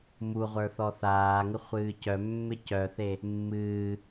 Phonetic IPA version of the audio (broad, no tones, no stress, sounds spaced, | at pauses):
m u ʁʷ ə˞ θ ɔ θ aː ŋ ɪ χʷ ɨː c œ mː ɪ c œ θ e | mː ɨː